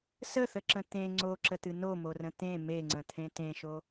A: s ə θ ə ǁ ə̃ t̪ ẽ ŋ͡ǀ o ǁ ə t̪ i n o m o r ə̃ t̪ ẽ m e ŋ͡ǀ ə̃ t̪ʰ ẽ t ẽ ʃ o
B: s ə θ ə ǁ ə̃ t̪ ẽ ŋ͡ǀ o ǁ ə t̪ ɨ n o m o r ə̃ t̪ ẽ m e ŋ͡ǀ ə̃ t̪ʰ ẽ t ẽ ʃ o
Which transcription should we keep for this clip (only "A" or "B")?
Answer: B